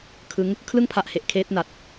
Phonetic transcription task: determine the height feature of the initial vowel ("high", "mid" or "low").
high